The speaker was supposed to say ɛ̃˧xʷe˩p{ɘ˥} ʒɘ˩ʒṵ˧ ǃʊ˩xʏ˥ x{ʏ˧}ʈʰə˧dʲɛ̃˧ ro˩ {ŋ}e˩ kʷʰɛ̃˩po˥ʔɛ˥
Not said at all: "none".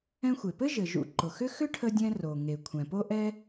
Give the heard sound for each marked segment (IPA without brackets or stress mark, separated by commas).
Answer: ɘ˥, ʏ˥, ŋ